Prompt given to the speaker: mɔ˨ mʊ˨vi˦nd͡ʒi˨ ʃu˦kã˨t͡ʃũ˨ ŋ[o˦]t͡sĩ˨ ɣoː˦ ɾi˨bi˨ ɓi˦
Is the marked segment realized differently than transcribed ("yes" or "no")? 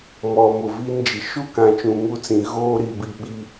yes